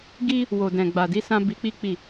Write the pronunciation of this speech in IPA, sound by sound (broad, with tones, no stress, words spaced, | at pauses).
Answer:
ɡi˦ | wo˨dɛ̃˨ ɡ͡ba˨di˨˦sã˧ bi˧k͡pi˦k͡pi˦˨